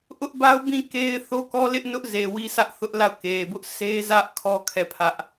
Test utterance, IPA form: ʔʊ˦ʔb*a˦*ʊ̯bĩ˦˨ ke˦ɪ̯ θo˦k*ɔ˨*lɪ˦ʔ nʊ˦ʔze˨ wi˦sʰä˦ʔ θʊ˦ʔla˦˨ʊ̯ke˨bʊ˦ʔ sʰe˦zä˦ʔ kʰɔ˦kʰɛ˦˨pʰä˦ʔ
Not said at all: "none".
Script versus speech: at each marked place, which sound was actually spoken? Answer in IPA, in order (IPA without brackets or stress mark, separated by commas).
a˦, ɔ˦